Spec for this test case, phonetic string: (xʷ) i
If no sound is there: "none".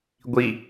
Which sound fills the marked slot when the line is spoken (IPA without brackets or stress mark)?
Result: ɡʷ